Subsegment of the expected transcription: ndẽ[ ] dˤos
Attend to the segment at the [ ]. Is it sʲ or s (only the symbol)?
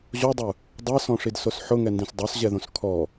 s